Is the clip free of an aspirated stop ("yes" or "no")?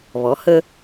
yes